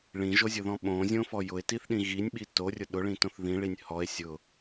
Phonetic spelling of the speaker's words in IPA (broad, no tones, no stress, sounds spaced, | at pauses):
ɭ ĩ ʒ o zʲ ʊ ð ɔ̃ ɓ õ zʲ õ f ɔ j ʊ e̯ t i θ ɗ ĩ ɣ i nʲ ɓ i t o rʲ ʊ ɗ ʊ ɭ ĩ t õ θ ð ĩ ɭ i nʲ h ɔ e̯ sʲ ʊ